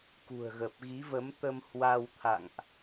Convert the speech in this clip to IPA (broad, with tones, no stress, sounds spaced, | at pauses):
k ṳ˨˩ ə̯ ɣ ə˨˩ p̚ ɣ i˨˦ v ə˨˦ m t̪ ə˧ m h w a˧ w t̪ʰ a̰˧˨ ŋ ʔ